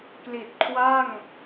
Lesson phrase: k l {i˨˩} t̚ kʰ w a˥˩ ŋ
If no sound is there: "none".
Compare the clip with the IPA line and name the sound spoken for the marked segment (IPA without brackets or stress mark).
i˨˩